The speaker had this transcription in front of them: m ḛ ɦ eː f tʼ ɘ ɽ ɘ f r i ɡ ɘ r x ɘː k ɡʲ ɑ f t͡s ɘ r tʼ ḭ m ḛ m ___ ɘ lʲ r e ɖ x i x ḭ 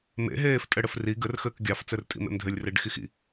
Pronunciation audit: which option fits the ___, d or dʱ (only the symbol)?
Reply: dʱ